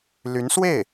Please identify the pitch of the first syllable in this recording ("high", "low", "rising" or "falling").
rising